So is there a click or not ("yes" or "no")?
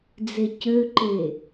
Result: yes